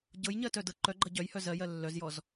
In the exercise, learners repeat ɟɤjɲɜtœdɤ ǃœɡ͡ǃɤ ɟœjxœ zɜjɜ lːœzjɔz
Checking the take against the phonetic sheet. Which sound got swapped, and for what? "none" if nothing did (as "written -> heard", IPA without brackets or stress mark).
x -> h